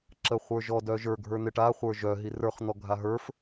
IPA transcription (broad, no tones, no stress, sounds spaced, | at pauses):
ǁ ə χʷ ə˞ ʒ ɔ d œ ʒ ə˞ ɡʱ ə˞ n̪ ɪ ʈ a χʷ ə˞ ʒ œ ɦ i r ə˞ χ n̪ ɔ ɡʱ a ɦ ə˞ f